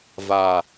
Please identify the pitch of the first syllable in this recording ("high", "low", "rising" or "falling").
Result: low